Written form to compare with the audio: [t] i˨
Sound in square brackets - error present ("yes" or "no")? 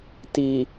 no